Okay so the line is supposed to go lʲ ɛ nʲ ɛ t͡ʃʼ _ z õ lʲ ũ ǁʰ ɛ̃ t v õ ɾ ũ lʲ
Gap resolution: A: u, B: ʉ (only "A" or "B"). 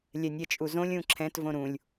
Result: A